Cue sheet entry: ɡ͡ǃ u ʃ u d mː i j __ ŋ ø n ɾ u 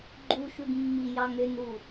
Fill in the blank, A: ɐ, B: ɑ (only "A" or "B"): B